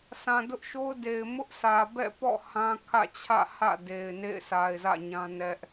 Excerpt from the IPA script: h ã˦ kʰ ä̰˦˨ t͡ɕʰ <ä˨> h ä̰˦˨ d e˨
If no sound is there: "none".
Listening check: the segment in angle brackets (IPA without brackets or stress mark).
ä̰˦˨